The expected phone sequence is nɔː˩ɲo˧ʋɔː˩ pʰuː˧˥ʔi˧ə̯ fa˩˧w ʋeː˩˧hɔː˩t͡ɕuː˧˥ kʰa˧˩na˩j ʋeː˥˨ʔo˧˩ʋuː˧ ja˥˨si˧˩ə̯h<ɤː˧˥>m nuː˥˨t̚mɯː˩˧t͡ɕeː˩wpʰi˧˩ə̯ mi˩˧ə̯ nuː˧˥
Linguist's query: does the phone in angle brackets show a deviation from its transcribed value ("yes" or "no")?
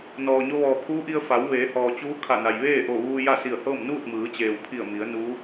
yes